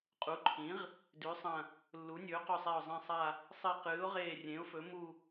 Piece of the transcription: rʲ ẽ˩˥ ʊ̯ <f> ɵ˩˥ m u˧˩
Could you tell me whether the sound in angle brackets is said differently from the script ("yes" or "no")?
no